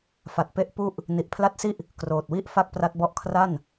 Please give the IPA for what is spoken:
fa˨˩t̚pe˦˥ʔ pu˥˩ʔ | ni˨˩ʔpʰla˦˥t̚si˥˩ʔ | kroː˨˩t̚wi˥˩ʔ fa˥˩k̚pra˦˥t̚bɔ˥˩ʔ kʰra˥˩n

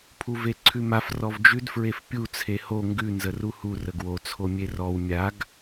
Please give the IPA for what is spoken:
pʰuveǀʰʉmaf rɔvd͡ʒʉd fɹefpʲu t͡sʰeho ŋɡʉ nzəruhu rəɡwo t͡sʰomʲerɔw mʲaɡ

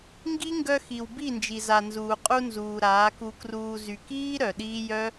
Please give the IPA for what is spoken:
ŋɡi˦ŋɡœ˧xi˨w bi˦˨nd͡ʒi˨za˨ nzuː˨qʼu˧nzuː˨ ɾaː˨˦ku˧kruː˧ zy˨kiː˦ ɾœ˨ɗiː˦ jœ˦

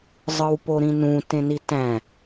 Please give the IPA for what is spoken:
zˤɯwpoɾĩnũ tẽnitæ̃

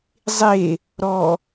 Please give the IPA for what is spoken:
zˤe | ɾɔ

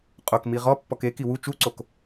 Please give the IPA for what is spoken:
qʼokmi ʁɔpːɔk eki wu t͡ʃuǀok

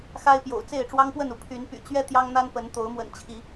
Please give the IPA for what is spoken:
xa˦ɪ̯pjo̰˨˩ʊ̯ t͡se˥˨ɪ̯ʈ͡ʂwɑ˦ŋpwə˥˨nu˩ pʰy˨˦npy̰˨˩t͡ɕɥɛ˦ t̪jɑ˦ŋn̪a˦npə˨˦n t̪o˨˦ʊ̯mwə̰˨˩nt͡ɕʰi˨˦

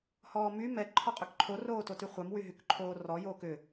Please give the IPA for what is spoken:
hɔːmy mɛ ǃʰɔqʼʏkǃʰo roːtotyχʷœm wyɦykǃʰoːrɔ joːkʏ

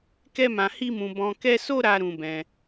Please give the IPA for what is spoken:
kɛ˦mã˧hi˦mũ˧ bɔ̃˧kɛ˦ so˦ɾa˧ ɾũ˧bɛ̃˧

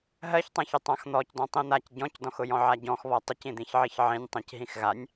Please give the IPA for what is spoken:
ɦɜçtˤãçʊ tˤãxn̪ɔc dɔ̃tˤĩn̪ac ɟɔ̃cdɔ̃xʊ jɔ̃ʕaɟɔ̃x βɔtˤʊcĩ d̪ĩçʕiçʕĩnʲ tˤĩcɦĩxɣanʲ

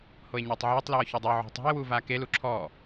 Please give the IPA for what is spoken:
hoe̯ɲuːtˤʕeːtˤ lɔːçodˤʊː ʕo̤tˤo̤e̯ wuːvaːke luǁʰɔː

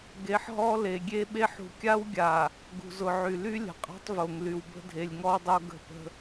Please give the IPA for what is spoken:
ɡe˨ħɦɔ˦ le˨ɡʲe˦ɓe˦ħ ṳ˨kʲa˦wɡʲa˨ | ɡṳ˨zʊ˨ʕy˨ ly˦ lʲə̤˨qʼa̤˦tˤvo˨ŋly˨w bə̤˦dʱe˨lʲŋɔ˦wdˤo˦ ɡə̤˦˨pə̤˦

